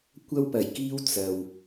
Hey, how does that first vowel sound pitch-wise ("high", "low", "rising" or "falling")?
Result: high